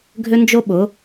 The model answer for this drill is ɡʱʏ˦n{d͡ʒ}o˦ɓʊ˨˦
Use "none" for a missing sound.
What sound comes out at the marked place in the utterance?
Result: d͡ʒ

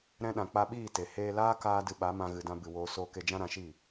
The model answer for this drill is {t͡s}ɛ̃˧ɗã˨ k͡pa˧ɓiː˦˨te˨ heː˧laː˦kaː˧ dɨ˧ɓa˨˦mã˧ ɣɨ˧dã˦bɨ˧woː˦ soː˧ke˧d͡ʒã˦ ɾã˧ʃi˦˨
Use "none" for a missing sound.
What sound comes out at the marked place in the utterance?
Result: ɾ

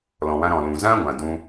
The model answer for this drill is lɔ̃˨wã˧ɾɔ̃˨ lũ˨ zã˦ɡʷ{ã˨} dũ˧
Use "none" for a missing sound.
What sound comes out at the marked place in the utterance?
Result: ã˨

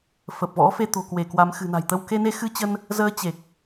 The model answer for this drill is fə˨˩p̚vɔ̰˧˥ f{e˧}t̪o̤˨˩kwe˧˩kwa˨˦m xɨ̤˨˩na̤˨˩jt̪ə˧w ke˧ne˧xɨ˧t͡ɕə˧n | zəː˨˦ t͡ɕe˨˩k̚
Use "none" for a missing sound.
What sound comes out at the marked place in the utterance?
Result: e˧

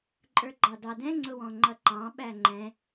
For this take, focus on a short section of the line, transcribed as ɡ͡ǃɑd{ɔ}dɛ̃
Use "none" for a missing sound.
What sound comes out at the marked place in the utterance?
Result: ɑ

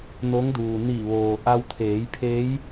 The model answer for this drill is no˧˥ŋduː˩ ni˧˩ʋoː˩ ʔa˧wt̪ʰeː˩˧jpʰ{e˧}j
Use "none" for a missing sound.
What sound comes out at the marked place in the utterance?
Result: e˧˥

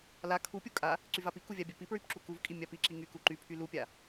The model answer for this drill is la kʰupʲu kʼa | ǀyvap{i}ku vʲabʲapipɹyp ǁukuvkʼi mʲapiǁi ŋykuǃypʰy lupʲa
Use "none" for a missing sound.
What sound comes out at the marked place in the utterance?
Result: i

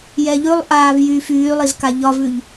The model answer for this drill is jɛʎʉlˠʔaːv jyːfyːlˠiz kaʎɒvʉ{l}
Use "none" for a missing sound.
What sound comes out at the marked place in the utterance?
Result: ʎ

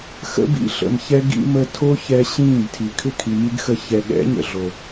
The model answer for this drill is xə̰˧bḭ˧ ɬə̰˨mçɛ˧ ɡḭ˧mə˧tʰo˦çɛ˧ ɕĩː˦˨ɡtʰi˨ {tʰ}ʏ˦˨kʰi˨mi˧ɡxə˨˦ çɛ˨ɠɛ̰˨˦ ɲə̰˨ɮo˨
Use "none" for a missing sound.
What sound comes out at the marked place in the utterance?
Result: kʰ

